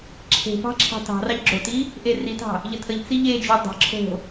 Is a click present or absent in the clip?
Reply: present